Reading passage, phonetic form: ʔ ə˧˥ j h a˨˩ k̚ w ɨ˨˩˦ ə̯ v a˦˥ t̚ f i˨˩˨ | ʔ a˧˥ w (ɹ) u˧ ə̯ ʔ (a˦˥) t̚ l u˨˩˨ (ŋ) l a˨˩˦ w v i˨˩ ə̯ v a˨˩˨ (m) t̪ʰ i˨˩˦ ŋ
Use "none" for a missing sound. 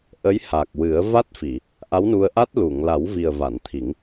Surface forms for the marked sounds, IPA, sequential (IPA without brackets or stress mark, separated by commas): n, a˦˥, ŋ, n